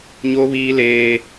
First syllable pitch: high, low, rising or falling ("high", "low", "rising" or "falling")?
high